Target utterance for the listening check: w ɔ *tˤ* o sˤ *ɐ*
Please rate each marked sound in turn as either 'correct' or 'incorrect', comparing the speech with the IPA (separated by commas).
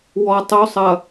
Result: correct, correct